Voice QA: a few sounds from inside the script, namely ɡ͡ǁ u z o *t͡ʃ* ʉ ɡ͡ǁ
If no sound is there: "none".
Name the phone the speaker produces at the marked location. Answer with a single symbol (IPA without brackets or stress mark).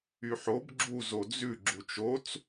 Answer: d͡z